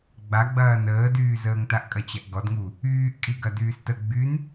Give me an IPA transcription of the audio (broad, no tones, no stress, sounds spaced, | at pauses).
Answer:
ɡ͡b a ɡ͡b ɐː n əː d yː z əː ŋ t a ʔ kʼ ɐ t͡ɕ ɐ ʔ ɡ ɔ d ŋ u | yː ʔ kʼ i ɡ ɐ d yː s t ə ɡ͡b y n